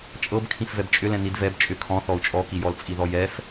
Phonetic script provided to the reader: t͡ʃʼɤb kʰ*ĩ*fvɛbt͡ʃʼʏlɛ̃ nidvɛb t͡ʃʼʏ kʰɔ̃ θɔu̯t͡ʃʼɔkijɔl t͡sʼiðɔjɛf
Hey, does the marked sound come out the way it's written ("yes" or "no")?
yes